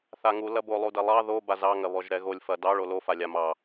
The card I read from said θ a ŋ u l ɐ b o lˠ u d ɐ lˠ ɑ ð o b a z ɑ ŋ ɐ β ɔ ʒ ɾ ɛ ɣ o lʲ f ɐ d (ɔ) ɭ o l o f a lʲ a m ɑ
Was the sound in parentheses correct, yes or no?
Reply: no